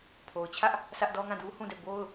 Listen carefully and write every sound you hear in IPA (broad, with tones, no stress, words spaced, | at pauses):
pʰo˨ʊ̯t͡ɕʰä˦ʔ | sä˦ʔ dɔ˦ŋã˦˨du˦ hũ˦˨dɛ˦˨ bo˦ʊ̯